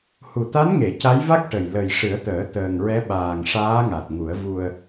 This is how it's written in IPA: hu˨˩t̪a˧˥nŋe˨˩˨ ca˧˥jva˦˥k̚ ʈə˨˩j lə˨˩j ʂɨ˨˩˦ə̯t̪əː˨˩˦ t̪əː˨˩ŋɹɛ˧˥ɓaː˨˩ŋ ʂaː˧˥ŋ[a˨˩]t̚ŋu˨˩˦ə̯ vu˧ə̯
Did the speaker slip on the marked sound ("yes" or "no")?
no